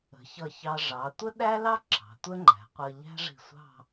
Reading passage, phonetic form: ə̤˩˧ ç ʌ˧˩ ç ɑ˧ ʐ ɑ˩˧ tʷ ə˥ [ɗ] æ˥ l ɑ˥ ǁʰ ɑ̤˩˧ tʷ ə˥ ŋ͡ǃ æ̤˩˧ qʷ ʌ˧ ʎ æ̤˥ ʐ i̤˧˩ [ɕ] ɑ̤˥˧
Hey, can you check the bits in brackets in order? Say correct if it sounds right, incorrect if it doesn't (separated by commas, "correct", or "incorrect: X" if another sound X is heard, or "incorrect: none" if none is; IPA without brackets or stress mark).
correct, incorrect: sʷ